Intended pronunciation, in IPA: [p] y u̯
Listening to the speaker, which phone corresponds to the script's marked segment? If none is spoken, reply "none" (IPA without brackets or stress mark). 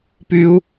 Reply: p